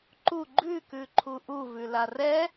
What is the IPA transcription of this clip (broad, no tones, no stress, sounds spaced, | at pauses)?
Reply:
ǃ u ɡ͡ǃ ʉ k ʉ ǃʰ u ʔ u v ʉ l a r ɛ